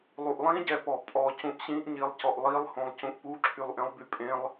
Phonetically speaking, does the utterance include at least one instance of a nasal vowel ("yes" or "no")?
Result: yes